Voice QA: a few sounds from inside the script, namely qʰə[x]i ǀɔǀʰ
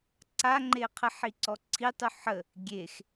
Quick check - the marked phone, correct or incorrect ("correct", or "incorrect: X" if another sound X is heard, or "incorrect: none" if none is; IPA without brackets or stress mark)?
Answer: incorrect: ħ